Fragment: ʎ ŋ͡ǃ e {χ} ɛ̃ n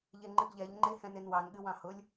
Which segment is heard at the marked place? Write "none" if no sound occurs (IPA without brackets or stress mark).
h